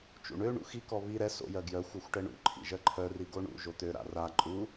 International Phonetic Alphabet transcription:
t͡ʃṵɳø ɳṵxikɔ βi ɾɛ so̰jɜ ɡjœxʷœxʷ ʈɛɳṵ ǃʰḭʒɜǃʰœ riɡoɳṵ ʒot̪ø ɾa̰ra ǃʼu

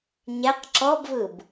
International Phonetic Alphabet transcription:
ɲɛq ǁɔbvɯb

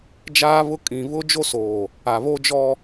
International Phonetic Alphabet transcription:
d͡ʒaː˦βʊ˦ kʼĩ˨βʊ˦ d͡ʒo˦soː˨ | a˨βoː˦d͡ʒɔ˦

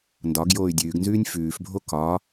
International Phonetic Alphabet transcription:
ndɒɡ joːy̯dʲʉːɡnzʉːnʲ fʉːfbʱo kɒ

